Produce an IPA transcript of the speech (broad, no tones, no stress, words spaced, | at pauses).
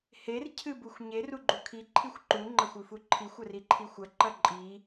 her cʰɨbuxʷɲer uɡ͡ǃukʰi ǃʰixʷǃu ŋ͡ǃɐxʷʉfuǃʰixʷ ɐriǃʰixʷɐ ǃɐǃʼi